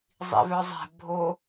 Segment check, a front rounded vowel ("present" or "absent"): present